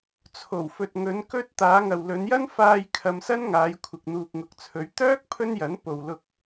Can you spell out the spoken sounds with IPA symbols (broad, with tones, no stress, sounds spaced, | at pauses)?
t͡sʰ o˨˩ w f ɵ˨ t̚ ŋ ɵ˨˧ n k ɵ˧ t̚ t̪ aː˨˧ ŋ ɐ˨ w l ɵ˨˧ n j ɐ˥ n f aː˧ j kʰ ɐ˧ m s ɐ˥ n ŋ aː˨˧ j kʷʰ ɪ˨ k̚ n̪ uː˨ k̚ ŋ ʊ˨˥ k̚ t͡sʰ ɵ˨˧ ɥ t̪ œː˥ k̚ pʰ ɵ˥ n j ɐ˨˥ n p o˨ w l ʊ˧ k̚